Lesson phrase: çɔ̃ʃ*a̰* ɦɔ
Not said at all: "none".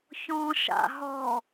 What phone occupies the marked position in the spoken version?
a̰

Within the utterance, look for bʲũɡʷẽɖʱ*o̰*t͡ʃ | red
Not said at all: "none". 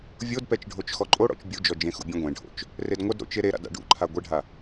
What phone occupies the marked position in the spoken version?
o̰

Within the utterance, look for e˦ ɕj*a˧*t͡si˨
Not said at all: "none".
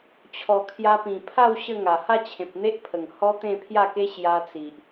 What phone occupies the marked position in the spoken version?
a˧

